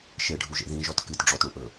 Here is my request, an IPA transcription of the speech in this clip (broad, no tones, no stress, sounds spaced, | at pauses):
ʃ e ɖʱ u ʒ ḛ ð ĩ ʒ ɔ t k ɨ t ɖ͡ʐ ɔ t ɽ ũ ʔ ɵ